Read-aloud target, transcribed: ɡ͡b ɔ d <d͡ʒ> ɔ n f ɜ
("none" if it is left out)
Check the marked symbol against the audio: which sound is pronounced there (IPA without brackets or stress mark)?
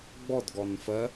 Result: ɡ